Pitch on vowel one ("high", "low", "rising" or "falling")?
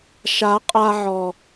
rising